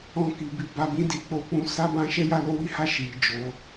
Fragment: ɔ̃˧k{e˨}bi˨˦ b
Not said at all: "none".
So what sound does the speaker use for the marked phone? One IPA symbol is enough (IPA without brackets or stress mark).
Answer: i˨